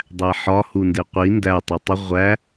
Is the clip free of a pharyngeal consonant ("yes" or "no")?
no